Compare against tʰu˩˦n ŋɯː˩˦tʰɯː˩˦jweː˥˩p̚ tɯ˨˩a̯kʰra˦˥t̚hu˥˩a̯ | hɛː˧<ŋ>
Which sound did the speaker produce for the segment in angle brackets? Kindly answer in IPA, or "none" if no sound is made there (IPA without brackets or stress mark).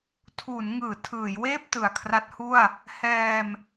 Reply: m